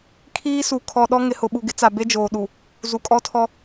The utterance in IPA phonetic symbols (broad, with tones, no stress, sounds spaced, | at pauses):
kʰ iː˦ s u˨ kʰ ɔ˨ ɗ ɔ˦ ŋ ɪ˨ h ʊ˨ ɓ u˨ ɡ ɪ˦ t͡s a˨ b e˦ d͡ʒ oː˨ ɗ u˨ | z u˨ kʼ ɔ˦ tʰ ɔ˦